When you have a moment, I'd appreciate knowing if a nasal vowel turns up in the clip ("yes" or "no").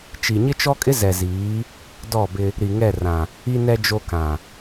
yes